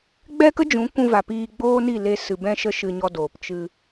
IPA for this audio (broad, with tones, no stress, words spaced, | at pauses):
ɡ͡bɛ˦kə˦d͡ʒũ˨˦ kʷũ˧va˨ piː˧ ɡ͡boː˦ni˦˨le˧ sɨ˨bɛ̃˧ʃə˧ ʃɨ˧ɲɔ˧doː˨p t͡ʃɨ˧